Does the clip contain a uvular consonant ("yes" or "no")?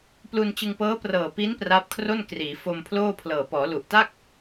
no